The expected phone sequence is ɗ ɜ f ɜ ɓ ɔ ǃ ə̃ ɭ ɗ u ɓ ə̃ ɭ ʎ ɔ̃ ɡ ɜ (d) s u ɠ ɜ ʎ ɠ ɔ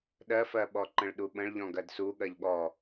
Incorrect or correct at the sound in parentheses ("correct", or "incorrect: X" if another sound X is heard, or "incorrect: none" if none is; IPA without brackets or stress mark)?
correct